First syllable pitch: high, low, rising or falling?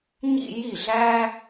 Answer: falling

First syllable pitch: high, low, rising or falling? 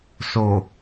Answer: low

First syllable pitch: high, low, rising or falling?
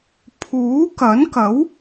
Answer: rising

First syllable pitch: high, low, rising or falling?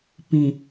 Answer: low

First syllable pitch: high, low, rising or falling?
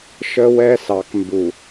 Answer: high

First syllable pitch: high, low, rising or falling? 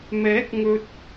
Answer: rising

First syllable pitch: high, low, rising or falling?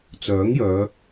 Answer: rising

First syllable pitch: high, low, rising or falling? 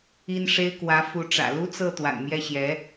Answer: high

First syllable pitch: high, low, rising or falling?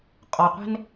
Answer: low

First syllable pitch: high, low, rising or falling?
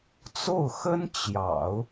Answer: falling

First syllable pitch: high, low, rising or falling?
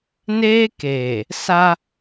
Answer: high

